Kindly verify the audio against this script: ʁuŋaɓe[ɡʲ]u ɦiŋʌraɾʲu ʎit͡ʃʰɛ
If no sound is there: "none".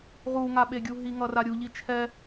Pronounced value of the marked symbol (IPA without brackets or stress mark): ɡʲ